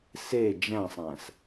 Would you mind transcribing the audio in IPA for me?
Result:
s e d͡ʒ æ̃ sˤ æ̃ s

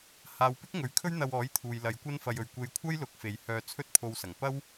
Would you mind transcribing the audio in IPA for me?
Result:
h aː˨ w p ɪ˥ k̚ ŋ ɵ˨˥ ɥ kʰ ɵ˥ ɥ n̪ ɐ˧ w ɔː˨˥ j t̪ʰ uː˨ j l ɐ˨˧ j kʷ ɐ˥ n f ɐ˧ j ɵ˨ ɥ kʷ e˧ j kʷʰ ɐ˥ j l ʊ˨˥ k̚ f e˨ j h œː˧ t͡sʰ ɵ˥ t̚ pʰ o˧ w s ɐ˨˩ ŋ p ɐ˥ w

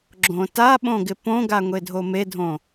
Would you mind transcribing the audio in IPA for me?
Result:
ɡ͡ǁ õ t a ɓ õ ɡ ɪ p õ ɡ a ŋʷ e dʱ o m e dʱ õ

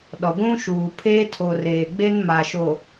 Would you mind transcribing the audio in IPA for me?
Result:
ɗ ɔ˨ ɡʷ ũ˦ ʃ uː˨ pʰ eː˦ tʰ o˨ r eː˨ ɡ͡b e˦ n m a˨ ʃ o˨

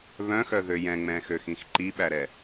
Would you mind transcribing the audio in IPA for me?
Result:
β œ̃ x œ ð ø j ɛ̃ ŋ͡m ɛ̃ x ø x ĩ x ǃ i ɓ æ ɾ ɛ

